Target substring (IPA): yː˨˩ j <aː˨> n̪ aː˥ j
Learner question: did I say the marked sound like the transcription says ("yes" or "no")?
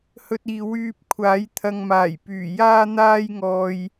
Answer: no